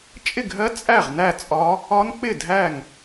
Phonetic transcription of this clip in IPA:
t͡ʃʼɪ˥˨ɡʱɜ˦˥ t͡sʼæ˥˨ʁnæ˥˨t͡sʼɒ˦˥ | ɒ˦˥nk͡pɪ˥˨ dʱæ˥˨ŋ

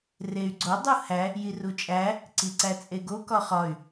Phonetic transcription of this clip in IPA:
rey̯ɡ͡ǀo dˤuhæ | jirut͡ʃʼæ | ǀiǀæt͡sʼeɡo kɒχɒy̯

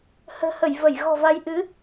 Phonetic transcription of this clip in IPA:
hə̤ː˨˩hə˧˩j və˧˩j ɣɔ̤˨˩va˨˦j ʔɨ˨˦

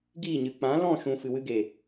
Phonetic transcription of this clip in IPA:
ɡiː˦˨ɲɨ˨ k͡pã˨˦lɔ̃˦˨ ʃũ˨ fɨ˨wɨ˧ɡe˨

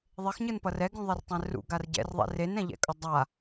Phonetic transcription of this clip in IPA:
ðˤexɲɯnpʌ rɛɡũðˤɛrtˤɛ̃ rṵɡar ɟɛ̰rðˤɛ̰ renɛ̃ʎɛ̰kʼʌ dˤa

